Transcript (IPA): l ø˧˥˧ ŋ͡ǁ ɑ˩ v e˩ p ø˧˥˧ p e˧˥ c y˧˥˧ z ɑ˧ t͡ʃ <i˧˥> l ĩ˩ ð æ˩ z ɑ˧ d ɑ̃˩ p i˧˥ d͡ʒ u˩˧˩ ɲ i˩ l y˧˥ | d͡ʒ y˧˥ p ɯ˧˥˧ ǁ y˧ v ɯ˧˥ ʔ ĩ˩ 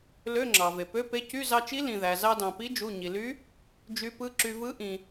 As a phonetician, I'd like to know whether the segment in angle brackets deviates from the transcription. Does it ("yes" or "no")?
no